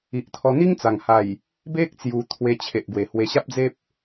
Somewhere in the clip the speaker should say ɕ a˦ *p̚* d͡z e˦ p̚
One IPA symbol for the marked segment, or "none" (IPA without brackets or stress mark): p̚